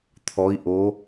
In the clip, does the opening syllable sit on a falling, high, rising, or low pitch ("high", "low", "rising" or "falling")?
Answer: rising